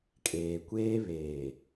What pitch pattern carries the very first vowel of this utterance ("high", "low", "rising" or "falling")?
low